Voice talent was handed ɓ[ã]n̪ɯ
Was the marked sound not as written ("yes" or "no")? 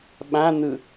no